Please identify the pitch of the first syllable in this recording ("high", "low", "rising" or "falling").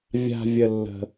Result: high